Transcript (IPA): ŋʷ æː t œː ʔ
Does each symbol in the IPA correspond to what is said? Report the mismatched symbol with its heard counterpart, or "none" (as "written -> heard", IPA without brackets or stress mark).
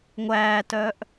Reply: none